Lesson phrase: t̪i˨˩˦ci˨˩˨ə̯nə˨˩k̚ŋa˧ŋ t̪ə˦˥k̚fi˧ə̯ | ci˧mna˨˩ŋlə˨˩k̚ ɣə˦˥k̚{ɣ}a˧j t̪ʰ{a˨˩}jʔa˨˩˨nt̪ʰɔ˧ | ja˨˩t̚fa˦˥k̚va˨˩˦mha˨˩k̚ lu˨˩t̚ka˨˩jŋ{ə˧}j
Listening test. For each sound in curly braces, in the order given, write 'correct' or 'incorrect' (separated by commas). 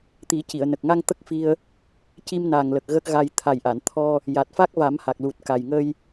correct, correct, correct